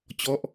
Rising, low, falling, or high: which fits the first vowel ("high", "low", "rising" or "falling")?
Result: falling